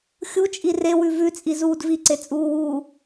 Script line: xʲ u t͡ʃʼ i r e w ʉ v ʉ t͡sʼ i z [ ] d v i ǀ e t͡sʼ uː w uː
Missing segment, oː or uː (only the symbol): uː